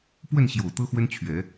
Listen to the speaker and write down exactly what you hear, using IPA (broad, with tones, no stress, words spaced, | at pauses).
pwə˥˨nɕjo˨˩ʊ̯ t̪ɤ˦xwə˦nt͡ɕʰɥɛ˨˦